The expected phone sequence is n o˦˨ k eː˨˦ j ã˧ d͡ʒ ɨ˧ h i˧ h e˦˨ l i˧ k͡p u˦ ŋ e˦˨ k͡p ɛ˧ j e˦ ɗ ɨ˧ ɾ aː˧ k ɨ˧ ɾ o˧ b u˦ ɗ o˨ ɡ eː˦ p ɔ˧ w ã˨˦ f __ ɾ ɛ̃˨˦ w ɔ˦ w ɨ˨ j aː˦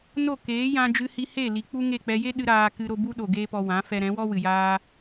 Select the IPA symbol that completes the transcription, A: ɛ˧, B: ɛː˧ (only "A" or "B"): A